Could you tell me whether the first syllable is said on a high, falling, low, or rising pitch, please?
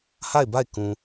falling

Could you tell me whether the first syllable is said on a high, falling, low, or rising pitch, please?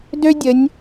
high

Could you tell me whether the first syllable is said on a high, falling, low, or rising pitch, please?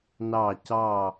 falling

